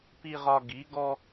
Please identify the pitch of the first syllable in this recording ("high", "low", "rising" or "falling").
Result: low